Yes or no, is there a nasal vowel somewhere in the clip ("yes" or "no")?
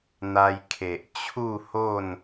no